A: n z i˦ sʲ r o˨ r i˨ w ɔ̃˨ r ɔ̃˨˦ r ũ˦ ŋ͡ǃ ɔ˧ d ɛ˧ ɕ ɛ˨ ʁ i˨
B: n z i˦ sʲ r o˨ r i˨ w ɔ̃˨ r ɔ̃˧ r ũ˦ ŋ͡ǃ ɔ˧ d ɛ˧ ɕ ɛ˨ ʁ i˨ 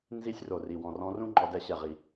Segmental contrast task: B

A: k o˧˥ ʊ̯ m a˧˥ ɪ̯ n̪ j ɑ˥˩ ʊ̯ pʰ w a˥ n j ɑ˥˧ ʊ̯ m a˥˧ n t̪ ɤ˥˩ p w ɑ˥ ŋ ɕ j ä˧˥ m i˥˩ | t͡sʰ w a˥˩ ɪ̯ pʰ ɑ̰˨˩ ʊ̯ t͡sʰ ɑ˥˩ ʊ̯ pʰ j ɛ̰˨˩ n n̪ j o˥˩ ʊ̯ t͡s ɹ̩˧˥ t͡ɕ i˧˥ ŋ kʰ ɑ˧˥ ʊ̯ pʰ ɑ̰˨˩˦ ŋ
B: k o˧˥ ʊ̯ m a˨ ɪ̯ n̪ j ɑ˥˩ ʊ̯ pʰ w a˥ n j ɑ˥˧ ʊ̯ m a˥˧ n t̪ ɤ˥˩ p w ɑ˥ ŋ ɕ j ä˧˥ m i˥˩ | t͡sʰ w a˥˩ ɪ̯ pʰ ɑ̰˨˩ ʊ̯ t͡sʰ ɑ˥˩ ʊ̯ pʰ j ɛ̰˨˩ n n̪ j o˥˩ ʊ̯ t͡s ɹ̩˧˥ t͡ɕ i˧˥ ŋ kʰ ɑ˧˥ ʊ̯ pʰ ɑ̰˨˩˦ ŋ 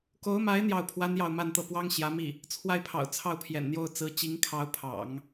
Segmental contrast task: A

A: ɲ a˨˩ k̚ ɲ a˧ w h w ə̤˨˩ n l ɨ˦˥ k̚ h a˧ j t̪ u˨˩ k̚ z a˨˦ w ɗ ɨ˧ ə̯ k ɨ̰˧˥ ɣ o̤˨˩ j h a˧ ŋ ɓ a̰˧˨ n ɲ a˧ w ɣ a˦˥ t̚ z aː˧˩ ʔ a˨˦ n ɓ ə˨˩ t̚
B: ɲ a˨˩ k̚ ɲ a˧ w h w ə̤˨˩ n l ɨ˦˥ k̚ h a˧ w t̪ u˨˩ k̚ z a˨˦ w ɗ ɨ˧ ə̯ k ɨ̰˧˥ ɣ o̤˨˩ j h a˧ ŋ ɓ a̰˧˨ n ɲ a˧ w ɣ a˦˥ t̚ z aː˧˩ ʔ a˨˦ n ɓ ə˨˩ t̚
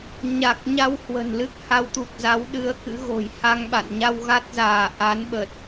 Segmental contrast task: B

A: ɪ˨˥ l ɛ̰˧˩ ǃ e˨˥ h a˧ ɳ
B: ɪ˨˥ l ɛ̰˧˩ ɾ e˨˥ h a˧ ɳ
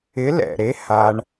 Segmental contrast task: B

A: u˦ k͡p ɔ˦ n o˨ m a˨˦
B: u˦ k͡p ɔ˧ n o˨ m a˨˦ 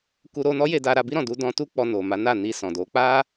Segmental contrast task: B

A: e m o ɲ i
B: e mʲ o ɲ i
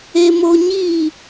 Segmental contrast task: A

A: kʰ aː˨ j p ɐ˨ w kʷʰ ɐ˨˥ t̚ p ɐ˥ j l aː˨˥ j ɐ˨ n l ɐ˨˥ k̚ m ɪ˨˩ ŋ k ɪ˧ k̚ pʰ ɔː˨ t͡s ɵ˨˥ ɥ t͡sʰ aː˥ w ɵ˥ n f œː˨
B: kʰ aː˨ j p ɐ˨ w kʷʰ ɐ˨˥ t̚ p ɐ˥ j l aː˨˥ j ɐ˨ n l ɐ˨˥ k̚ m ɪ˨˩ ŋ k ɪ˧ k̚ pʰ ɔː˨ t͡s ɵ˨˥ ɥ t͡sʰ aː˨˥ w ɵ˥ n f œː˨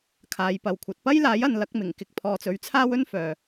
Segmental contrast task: A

